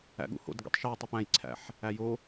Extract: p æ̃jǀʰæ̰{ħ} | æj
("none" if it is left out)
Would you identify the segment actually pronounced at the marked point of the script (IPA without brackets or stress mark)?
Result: ħ